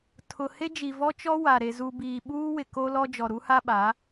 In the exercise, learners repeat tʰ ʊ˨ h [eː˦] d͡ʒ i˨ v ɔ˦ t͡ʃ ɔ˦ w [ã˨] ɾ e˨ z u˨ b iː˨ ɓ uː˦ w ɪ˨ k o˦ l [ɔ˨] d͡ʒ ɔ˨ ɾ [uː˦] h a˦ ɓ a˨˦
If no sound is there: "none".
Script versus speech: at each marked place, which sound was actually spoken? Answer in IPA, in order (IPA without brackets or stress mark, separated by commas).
e˦, a˨, ɔ˦, u˦